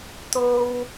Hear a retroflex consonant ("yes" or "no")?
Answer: no